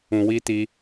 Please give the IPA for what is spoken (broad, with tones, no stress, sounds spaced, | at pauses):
ũ˨ w i˧ t i˧